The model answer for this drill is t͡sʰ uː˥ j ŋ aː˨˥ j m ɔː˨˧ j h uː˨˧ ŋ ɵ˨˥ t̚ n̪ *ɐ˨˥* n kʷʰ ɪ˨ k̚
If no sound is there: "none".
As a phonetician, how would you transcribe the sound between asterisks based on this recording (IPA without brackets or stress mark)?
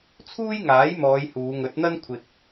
ɐ˥